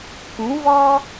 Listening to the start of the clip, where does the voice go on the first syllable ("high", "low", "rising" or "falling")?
rising